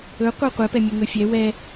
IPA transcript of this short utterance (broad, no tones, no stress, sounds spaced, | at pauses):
ɵ qʷ ɛ qʷ ɛ p ɛ mʲ ɵ ŋ ɵ fʲ ɛ w ɛ